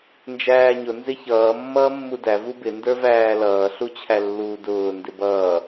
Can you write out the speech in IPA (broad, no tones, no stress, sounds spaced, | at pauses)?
n d͡ʒ æː ɲ ʊ n z ɪ ç ʌː mː ʌː mː u d æ v u b ɪ n d ə˞ v æː l ʌː ɬ u t͡ɕʰ æ lː uː d ʊː n d ɪ b ʌː